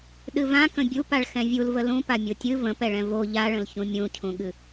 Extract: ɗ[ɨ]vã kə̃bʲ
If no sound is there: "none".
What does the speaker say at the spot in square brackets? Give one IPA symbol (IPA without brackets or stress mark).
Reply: ɨ